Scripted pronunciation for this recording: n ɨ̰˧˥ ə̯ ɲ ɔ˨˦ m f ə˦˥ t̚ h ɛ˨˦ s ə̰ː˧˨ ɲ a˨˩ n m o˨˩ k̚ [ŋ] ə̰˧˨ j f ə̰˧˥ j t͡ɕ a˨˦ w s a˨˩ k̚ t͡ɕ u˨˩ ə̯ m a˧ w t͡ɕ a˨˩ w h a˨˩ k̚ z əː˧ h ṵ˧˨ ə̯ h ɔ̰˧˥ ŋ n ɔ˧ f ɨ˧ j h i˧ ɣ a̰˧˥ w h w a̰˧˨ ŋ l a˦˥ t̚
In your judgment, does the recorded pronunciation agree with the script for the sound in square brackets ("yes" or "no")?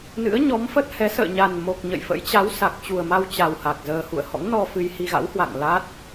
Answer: no